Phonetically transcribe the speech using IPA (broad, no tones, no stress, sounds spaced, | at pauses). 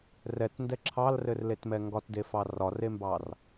r ɛ t n d ɛ ǁʰ ɑ l r ɘ r l e t m ɛ ŋ ɡ ɒ t d e f ɑ r ɒ r e m b ɑ r